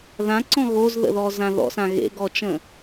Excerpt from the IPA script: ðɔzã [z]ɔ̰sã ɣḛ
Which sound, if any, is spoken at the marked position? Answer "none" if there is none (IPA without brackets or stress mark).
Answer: ð